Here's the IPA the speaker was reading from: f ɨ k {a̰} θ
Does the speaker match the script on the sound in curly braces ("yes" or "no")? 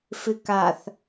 no